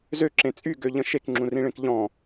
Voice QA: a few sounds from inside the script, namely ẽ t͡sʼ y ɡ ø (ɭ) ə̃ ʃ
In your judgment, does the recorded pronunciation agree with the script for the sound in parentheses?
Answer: no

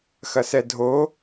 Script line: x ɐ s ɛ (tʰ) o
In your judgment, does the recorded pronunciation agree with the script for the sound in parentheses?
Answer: no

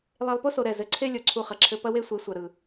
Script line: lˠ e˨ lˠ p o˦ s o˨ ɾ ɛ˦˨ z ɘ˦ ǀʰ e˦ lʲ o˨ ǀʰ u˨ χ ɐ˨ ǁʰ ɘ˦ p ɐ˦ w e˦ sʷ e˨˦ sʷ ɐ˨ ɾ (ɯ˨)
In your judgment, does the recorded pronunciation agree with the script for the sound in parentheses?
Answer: yes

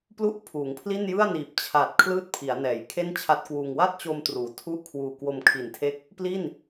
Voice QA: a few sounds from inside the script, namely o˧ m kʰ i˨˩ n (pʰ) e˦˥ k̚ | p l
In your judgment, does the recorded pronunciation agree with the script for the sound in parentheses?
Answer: no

